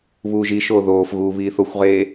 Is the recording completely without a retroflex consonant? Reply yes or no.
yes